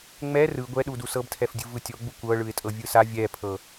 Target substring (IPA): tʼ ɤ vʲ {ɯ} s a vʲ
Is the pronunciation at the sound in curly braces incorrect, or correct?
correct